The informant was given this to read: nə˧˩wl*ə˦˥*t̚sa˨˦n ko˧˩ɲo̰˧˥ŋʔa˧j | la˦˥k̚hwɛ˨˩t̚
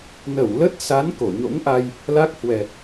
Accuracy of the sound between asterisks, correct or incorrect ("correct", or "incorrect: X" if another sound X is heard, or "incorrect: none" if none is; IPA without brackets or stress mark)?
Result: correct